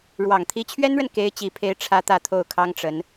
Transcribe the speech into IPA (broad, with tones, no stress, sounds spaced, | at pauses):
ɻ w ɑ˨˩ ŋ t̪ʰ i˧˥ t͡ɕʰ ɥ ɛ˥ n ɻ ə˨ n k e˧˥ ɪ̯ t͡ɕ i˨˩ pʰ e˧˥ ɪ̯ ʈ͡ʂʰ ä˥ t̪ ä˥˧ t̪ʰ o˥˩ ʊ̯ kʰ ɑ˥ ŋ ʈ͡ʂ ə˧˥ n